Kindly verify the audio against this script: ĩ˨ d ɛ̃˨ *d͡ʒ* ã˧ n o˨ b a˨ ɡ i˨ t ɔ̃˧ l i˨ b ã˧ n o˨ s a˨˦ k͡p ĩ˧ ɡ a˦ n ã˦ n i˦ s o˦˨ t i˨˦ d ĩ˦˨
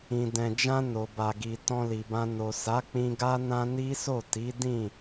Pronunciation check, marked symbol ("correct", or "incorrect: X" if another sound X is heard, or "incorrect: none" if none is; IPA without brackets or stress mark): correct